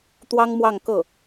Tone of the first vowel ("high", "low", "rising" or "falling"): high